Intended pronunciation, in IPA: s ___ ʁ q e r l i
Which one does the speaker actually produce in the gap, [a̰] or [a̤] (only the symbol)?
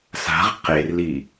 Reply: a̤